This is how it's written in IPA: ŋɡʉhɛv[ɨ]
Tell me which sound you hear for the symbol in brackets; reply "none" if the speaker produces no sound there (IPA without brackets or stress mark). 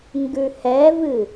ɨ